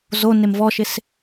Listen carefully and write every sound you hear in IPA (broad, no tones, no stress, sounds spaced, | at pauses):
z o n e m v ɔ ʃ ɪ s